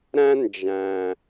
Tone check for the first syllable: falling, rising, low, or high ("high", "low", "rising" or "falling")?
high